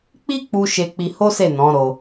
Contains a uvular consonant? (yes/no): no